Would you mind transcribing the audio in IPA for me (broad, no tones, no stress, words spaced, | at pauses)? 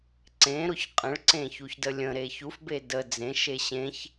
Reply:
ǀẽɾʊç qʼə̃ɭǀẽ çuçdəlʲə̃ɾe çufbe də d͡zẽʃe ɕẽç